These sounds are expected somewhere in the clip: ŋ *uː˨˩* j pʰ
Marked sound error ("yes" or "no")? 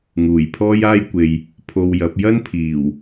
no